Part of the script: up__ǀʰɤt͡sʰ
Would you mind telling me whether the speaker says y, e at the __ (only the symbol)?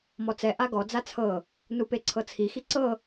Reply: e